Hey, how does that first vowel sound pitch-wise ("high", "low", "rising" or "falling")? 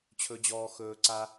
high